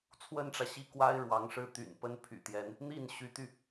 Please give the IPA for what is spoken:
t͡sʰ w ə˥ n ʈ͡ʂ ä˨ ɕ i˥˩ k w a˥ ɪ̯ ɻ w ɑ˧˥ ŋ ʂ ɻ̩˥˩ t̪ y̰˨˩ n p ə˥ n pʰ y̰˨˩ t̪ j ɛ˧˥ n | n̪ i˥˩ n ɕ y˧˥ t̪ y˧

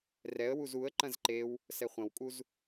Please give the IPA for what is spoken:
r ɛ ə̯ w u z u ə̯ ǃ ɐ̃ z ǃ e w | s ɛ χʷ ɐ̃ w kʼ u z

